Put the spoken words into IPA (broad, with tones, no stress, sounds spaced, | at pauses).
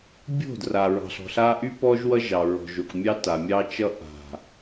bʲ o̤˦˨ d r a˨ ɹ ɑ̤˨ ɬ ɔ̤˨ ɬ a˦ ʔ y˦ p ɔ˦ ʒ w ʌ˦ ʒ ɑ˨ ɹ ɔ̤˨ ʒ o˨ k mʲ ɑ˦ t a˨ mʲ ɑ˦ t͡ʃ ʌ˦ ʔ a̤˨